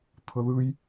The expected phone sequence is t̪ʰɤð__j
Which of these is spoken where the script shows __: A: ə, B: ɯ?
B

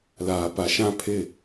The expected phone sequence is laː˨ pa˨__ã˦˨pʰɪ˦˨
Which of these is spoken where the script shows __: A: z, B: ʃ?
B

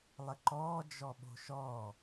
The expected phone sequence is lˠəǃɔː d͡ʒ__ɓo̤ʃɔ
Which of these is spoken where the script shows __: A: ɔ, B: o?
A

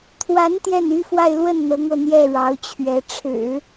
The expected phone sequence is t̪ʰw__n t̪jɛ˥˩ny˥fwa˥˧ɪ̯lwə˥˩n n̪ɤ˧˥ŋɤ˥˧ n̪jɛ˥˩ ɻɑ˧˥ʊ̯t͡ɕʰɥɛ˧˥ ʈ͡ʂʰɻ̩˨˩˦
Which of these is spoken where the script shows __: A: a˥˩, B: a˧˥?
B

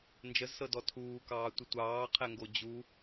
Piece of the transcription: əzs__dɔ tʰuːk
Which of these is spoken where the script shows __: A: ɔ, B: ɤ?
B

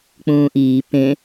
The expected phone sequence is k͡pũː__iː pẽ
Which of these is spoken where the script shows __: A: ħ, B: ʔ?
B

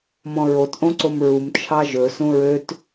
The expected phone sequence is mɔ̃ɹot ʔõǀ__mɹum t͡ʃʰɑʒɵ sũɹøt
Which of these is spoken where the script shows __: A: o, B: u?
A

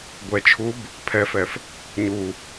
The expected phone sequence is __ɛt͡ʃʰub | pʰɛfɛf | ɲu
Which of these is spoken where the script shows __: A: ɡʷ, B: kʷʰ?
A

